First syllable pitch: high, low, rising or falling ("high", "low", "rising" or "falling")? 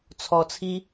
low